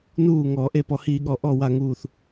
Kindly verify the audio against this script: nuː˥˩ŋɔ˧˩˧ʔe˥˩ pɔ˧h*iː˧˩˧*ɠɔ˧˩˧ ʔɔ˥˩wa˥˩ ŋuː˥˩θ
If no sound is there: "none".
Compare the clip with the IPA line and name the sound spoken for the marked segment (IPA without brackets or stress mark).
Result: iː˧˩˧